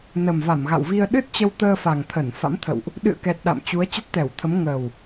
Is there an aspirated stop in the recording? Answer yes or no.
yes